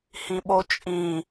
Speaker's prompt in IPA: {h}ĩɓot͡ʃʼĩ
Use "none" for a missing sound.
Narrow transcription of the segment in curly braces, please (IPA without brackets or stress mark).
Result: h